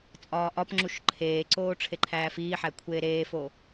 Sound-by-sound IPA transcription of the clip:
t͡sʼ ɒː ʔ ɒ p ŋ͡ǁ u ʃ ǃʰ eː ǀ oː ʈ͡ʂʰ e ǃʰ æː f iː ħ æ kʷʰ eː ɾ eː f o

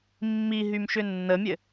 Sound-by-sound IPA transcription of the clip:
mː i ɦ y m ʃ ʏ nː ə mʲ ɘ

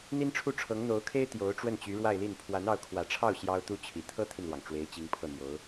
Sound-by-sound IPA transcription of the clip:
n̪ i˥ n ʈ͡ʂʰ u˥˩ ʈ͡ʂʰ ɤ˧˥ ŋ n̪ o˧˥ ʊ̯ kʰ e˥ ɪ̯ t̪ j o˧˥ ʊ̯ ʈ͡ʂ w ə˥˩ n t͡ɕ y˧˥ ɻ w a˥˧ ɪ̯ l i˥˩ n pʰ w a˧˥ n ɑ˧˥ ʊ̯ kʰ w ä˨˩ ʈ͡ʂʰ ɑ˥˩ ʊ̯ ɕ j ɑ˥ ʊ̯ t̪ u˥ t͡ɕʰ i˨˩ t̪ʰ ɤ˥ t̪ʰ i˨ n l w ɑ˩ ŋ ʈ͡ʂ w e˧˥ ɪ̯ t͡ɕ i˧˥ ŋ pʰ ɤ˥˩ n̪ j o˧˥ ʊ̯

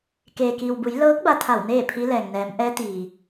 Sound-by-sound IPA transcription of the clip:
k eː˩ k iː˩ w b u˩˧ j l ɤː˧˥ k̚ b a˧˥ t̪ʰ a˧˩ w n eː˥˨ pʰ i˧˥ l ɛː˩ ŋ n ɛː˩˧ m ʔ ɛː˧˥ t̪ iː˩

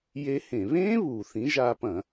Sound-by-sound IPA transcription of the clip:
j e˦˥ h ẽ˧˩˧ β ẽː˦˥ β uː˩ θ ĩ˨˥ ʒ aː˧ p ɐ̃˧˩˧

